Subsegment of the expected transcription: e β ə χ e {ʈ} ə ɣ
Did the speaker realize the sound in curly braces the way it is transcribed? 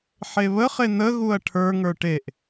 no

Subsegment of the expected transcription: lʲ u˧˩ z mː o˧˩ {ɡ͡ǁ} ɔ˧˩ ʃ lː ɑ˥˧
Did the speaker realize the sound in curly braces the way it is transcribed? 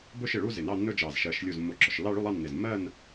yes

